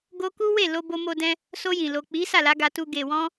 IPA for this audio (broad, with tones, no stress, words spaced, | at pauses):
ɡo˧ ku˦we˦˨ lo˧bo˧mo˧dɛ̃˧ | so˧jĩ˨lo˨ k͡pi˨˦sa˦˨la˨˦ ɡa˧tu˧ ɡe˨wɔ̃˧